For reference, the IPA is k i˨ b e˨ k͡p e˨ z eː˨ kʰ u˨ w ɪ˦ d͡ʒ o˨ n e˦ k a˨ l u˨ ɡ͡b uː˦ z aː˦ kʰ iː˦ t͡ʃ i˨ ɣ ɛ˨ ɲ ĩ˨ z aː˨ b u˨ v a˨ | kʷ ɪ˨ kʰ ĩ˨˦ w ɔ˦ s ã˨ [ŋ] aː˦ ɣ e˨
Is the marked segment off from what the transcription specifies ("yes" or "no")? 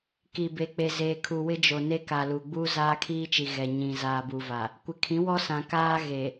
yes